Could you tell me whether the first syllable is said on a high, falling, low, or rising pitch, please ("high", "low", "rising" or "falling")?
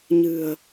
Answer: low